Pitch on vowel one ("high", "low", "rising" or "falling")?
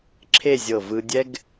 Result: falling